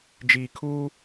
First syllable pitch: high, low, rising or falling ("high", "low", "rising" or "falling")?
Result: low